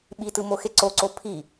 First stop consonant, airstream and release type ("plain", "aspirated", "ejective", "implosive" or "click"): implosive